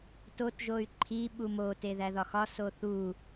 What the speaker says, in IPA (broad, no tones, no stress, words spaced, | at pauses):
totʒoy̯ ǃʰiɓu mote ðæðɒxɒ soθu